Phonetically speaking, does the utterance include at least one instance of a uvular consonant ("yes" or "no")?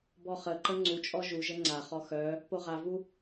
yes